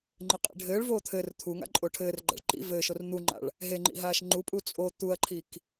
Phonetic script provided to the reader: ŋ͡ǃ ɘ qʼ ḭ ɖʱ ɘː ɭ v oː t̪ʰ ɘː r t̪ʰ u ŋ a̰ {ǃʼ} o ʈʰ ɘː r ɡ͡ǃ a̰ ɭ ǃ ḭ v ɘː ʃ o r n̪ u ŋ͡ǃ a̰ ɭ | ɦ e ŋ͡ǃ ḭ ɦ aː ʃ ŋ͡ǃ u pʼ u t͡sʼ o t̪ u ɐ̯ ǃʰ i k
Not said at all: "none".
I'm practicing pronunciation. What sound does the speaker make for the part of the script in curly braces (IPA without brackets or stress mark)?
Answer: ǃʼ